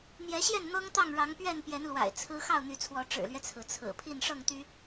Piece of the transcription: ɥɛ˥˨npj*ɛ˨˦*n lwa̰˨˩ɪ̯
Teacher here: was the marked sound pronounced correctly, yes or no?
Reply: yes